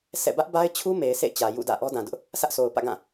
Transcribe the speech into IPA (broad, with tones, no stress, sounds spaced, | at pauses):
s ɛ̰˦˨ b ä˦ ʔ b a˦ ɪ̯ t͡ɕʰ u˦ m e˨ ɪ̯ s ḛ˦˨ ɪ̯ t͡ɕ ä˨ j ṵ˦˨ d ä̰˦˨ ʔ ɔ˦ d ã˨ d ʊ˦ ʔ | s ä˦ ʔ sʰ o˨ ʊ̯ p ä̰˦˨ ɡ ã˦˨